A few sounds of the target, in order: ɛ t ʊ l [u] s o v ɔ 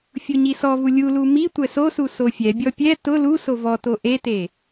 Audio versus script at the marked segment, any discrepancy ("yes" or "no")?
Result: no